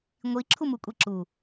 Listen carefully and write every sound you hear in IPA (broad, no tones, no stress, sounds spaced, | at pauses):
ŋʷ i ǁʰ u m u kʷʼ i ǁ u